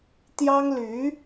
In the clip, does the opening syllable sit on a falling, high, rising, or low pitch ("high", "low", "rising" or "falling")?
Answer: high